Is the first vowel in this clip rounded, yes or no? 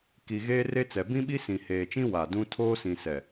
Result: no